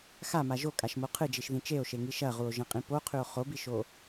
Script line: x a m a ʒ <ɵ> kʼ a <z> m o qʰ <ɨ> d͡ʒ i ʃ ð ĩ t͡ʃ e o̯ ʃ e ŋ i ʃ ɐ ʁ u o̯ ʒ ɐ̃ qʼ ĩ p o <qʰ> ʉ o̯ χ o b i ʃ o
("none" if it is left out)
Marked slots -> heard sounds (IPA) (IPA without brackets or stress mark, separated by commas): o, ʃ, ɨ, qʰ